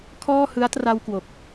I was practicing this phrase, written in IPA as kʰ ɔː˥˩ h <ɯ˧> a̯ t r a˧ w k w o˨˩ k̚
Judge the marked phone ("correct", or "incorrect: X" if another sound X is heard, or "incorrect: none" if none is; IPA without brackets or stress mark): incorrect: ɯ˦˥